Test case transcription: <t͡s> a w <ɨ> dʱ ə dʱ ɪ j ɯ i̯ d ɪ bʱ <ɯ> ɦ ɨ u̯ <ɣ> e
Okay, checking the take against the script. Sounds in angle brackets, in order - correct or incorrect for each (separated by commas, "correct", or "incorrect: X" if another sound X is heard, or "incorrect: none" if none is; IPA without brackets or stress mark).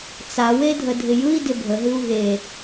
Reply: correct, incorrect: e, incorrect: ə, correct